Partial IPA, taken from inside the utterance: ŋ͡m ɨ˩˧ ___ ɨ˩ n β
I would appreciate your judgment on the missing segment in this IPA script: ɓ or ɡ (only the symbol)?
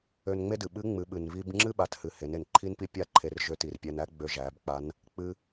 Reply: ɓ